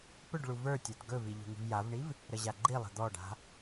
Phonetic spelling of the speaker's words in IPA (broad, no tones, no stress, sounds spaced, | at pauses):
p ɵ ɖ ɭ u v ə˞ tʲ a d ɡ ɵ v i ʎ ṳ ŋ i̤ v j a v ɳ i v | ɾ ə ʑ a ɡ͡ǃ i lˠ ə̤ d̪ ɔ ɖ a̤